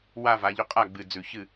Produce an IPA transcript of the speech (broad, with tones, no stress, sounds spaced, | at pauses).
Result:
w a˥˧ v a˩˧ ʎ ɵ˧˥ qʼ a˥˩ ɡ͡b ɨ˨˩ d͡z ʉ˨˩ ç ɨ˥˩